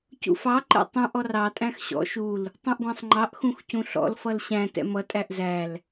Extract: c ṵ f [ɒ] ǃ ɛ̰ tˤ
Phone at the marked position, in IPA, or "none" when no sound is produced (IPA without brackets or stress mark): ɑ